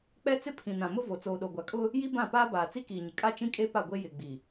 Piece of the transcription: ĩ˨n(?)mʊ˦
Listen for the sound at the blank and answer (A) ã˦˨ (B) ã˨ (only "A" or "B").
B